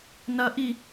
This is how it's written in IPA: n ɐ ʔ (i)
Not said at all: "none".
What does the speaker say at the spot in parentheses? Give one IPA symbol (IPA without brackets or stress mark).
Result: i